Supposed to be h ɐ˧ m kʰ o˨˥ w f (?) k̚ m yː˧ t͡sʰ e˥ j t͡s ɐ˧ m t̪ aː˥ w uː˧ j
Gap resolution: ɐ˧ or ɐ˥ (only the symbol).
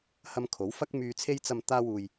ɐ˥